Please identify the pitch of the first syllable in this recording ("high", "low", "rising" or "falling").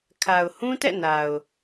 low